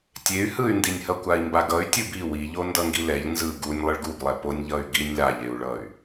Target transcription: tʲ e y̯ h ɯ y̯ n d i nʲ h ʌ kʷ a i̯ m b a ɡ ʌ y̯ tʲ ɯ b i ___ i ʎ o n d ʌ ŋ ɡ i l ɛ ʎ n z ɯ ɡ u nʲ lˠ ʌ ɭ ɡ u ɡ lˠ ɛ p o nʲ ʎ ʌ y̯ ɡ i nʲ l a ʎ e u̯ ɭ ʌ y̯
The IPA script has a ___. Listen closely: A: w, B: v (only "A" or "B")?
A